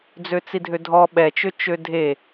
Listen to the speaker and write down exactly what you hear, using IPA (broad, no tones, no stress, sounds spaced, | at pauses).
d͡z ø t͡s i dʱ ø dʱ ɔ ɓ ɛ t͡ʃ ø t͡ʃ ø dʱ e